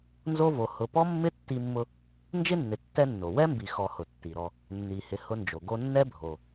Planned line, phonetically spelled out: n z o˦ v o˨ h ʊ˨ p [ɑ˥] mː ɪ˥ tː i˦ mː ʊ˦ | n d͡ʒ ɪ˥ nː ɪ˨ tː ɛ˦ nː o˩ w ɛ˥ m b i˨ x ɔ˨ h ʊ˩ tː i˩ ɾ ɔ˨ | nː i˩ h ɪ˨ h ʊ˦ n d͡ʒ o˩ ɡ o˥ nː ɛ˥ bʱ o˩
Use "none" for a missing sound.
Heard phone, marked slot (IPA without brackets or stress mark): ɔ˥